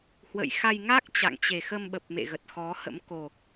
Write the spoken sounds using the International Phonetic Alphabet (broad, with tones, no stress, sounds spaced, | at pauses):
h w ə̰˧˨ j x a˧ j ŋ a˦˥ k̚ t͡ɕ a̰˧˨ ŋ t͡ɕ e˨˩ x ə˧ m ɓ ə˨˩ p̚ m ḛ˧˨ ɣ ə˨˩ t̚ x ɔ˨˦ h ə̰˧˥ m k o˨˩